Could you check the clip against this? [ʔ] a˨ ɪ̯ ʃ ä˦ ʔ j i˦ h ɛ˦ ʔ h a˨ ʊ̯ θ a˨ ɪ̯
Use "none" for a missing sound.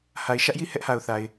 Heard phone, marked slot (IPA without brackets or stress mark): h